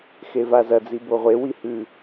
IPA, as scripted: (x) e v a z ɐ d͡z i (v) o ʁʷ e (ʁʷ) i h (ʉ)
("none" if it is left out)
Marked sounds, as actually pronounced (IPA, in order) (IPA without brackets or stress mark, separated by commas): x, b, w, ʉ